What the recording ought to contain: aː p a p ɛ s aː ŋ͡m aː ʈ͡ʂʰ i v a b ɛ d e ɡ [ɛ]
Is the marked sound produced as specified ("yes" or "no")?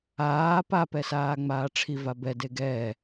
no